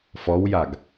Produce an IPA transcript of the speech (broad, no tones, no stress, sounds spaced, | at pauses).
f ɔ w j a ɡ